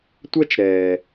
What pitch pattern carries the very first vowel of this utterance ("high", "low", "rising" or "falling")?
high